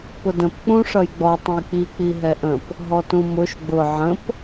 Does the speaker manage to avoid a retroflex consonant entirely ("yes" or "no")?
no